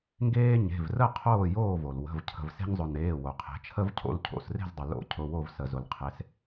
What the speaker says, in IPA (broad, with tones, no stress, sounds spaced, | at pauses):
ŋ ɡ eː˦ ɲ e̤˩˧˩ v r ə˥˨ qʰ oː˥˨ j oː˥˨ v o˩ l w ə̤˩˧˩ v cʰ ə̤˩ v s e̤˦ ɲ zˤ ʊ˩ n eː˩˧˩ w o˩ qʰ e̤˩˧ t͡ʃʰ ə˦ v cʰ o̰˩˧˩ l cʰ o̰˩˧˩ s r e̤˥˨ z dˤ ʊ˩ l o̰˧˩ cʰ ʊ˩˧˩ w o˧˩ v s ə˩ z ʊ˩ l qʰ e˩˧ s